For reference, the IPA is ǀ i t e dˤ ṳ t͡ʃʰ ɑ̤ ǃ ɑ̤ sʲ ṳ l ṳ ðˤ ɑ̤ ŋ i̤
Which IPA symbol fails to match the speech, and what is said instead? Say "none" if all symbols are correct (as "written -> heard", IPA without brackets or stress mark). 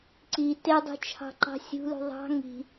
none